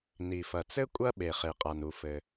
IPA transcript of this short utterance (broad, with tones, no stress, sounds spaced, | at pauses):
n i˩ f ɐ˩ t͡s ɘ˥ kʷʼ ɐ˥ ɓ e˩ χ e˩ qʼ a˩ n u˩ f ɘ˩